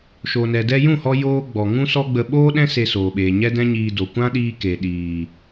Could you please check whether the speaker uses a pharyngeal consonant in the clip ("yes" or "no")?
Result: no